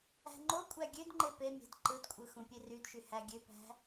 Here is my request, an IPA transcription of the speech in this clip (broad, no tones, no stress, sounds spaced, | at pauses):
æ̤ ŋ͡ǃ o kʷʼ æ ɡʲ ø d ŋ͡ǃ e p e mʲ æ̤ d ǃ ɯ d kʷʼ ɯ x ũ pʲ e r y d ʃ y h æ ɡʲ ø p æ̤